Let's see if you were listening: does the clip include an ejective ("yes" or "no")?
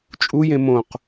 yes